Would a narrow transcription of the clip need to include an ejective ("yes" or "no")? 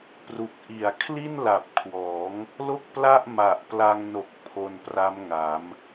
no